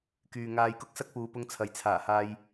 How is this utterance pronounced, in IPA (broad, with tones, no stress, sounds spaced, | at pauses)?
k yː˨ ŋ aː˧ j k ʊ˥ k̚ s ɐ˥ k̚ p uː˨˧ p ʊ˧ ŋ t͡sʰ ɐ˨ j t͡sʰ aː˨˩ h aː˧ j